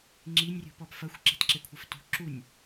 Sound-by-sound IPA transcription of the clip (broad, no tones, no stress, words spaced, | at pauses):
ŋ͡ǁinʲrʲṳpɔp fɐxʷǁe̤tǁekʷʰɐf tṳ ǁunʲ